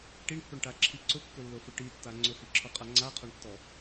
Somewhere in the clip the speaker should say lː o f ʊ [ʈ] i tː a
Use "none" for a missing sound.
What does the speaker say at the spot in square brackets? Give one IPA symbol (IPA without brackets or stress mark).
ʈ